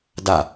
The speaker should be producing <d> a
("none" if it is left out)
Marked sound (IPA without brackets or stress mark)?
d